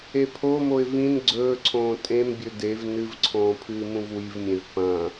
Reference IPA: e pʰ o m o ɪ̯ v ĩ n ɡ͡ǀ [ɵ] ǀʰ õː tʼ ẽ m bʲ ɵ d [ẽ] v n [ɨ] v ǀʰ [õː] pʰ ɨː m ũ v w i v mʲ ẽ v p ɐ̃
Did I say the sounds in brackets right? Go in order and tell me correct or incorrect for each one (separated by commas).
incorrect, incorrect, correct, correct